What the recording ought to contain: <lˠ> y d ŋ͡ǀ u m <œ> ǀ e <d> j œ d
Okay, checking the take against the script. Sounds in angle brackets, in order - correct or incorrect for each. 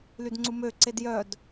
incorrect: l, incorrect: ø, correct

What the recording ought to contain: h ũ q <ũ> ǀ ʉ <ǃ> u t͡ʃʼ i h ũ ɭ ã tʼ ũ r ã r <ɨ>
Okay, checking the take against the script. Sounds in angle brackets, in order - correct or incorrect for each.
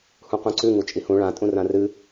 correct, incorrect: ŋ, correct

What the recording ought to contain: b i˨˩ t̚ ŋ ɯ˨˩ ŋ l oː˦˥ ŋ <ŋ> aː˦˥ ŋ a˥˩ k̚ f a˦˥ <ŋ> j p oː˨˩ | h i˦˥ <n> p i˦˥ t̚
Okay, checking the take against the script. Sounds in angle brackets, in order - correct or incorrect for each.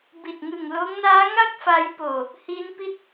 incorrect: n, incorrect: none, correct

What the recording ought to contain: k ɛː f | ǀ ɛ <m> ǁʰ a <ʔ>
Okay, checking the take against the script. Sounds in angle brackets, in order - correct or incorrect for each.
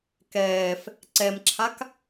correct, incorrect: k

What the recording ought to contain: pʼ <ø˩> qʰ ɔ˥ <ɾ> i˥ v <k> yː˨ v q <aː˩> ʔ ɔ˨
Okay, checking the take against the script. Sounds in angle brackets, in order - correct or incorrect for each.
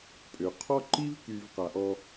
correct, incorrect: ǃ, correct, incorrect: a˩

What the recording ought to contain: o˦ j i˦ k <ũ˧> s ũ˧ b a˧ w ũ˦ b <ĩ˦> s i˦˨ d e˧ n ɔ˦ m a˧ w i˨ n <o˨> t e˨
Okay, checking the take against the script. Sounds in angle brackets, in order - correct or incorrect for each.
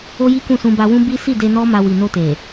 incorrect: ũ˦˨, incorrect: i˦, incorrect: o˧

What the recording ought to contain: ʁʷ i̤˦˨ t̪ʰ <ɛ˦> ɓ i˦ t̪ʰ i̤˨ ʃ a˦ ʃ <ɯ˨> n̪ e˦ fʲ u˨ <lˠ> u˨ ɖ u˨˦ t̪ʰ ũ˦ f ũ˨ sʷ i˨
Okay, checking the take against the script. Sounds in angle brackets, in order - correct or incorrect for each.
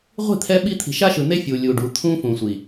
correct, correct, incorrect: lʲ

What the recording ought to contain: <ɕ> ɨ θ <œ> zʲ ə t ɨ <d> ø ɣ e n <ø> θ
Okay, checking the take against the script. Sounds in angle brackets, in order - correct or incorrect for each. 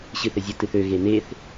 correct, incorrect: ə, incorrect: θ, incorrect: e

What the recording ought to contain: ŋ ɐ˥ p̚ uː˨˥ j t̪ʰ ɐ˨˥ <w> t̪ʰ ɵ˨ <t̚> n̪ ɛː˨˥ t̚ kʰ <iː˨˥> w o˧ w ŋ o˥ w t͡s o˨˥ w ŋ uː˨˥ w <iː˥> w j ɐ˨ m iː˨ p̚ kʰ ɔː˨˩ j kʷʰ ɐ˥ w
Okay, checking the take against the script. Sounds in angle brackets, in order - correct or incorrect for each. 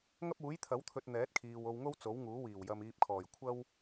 correct, correct, incorrect: iː˨, incorrect: iː˨˩

